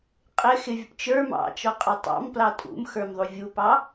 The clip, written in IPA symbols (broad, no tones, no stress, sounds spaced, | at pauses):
qʼ ɪ x ɪ vʲ ʊ p t͡ʃ ə˞ m ɑ̰ t͡ʃ ɔ qʼ ɑ tˤ ɑ̰ m p l ɑ tʼ ṵ m x ə˞ m ðˤ u vʲ u p ɑ